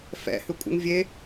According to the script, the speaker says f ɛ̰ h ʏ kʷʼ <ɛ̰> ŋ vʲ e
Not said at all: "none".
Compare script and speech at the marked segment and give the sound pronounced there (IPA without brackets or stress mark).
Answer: ə̰